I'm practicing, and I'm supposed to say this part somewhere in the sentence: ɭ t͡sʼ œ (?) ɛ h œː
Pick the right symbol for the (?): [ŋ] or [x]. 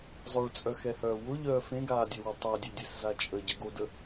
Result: x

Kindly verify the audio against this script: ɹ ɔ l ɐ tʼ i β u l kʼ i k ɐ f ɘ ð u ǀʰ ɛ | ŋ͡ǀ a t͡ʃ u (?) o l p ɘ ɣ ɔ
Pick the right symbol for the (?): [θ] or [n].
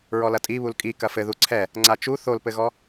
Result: θ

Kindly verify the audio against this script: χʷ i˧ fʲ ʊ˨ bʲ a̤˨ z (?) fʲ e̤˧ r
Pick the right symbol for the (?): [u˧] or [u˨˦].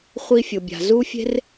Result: u˧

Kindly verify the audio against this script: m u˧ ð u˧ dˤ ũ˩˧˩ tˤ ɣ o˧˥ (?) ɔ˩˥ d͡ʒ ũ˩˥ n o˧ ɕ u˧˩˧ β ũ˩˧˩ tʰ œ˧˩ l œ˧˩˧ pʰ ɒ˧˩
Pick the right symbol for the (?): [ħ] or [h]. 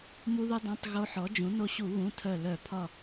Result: ħ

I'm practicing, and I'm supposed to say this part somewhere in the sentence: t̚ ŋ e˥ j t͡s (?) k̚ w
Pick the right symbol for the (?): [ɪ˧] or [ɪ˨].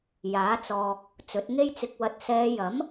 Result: ɪ˧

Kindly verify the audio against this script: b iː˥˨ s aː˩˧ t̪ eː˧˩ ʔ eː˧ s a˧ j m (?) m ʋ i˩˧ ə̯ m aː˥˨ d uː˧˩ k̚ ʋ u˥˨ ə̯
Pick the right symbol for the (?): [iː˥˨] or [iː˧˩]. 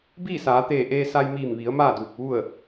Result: iː˧˩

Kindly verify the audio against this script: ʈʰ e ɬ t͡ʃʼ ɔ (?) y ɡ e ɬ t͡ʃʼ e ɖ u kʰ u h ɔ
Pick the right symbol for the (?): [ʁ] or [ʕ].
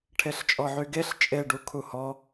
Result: ʕ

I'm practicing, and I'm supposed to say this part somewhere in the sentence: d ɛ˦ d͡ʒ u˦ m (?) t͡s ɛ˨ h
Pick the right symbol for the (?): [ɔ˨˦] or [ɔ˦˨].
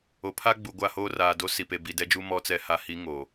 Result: ɔ˨˦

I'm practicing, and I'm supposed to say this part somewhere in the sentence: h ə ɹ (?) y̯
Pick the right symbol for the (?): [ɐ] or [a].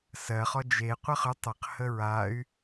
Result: a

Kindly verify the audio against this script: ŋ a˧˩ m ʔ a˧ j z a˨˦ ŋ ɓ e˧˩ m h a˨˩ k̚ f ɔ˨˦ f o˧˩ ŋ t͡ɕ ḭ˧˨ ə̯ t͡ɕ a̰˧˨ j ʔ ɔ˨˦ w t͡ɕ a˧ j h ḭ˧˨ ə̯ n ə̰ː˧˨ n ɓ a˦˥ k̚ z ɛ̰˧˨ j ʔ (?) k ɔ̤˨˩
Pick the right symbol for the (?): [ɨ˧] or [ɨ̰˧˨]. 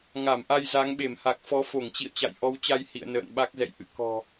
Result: ɨ̰˧˨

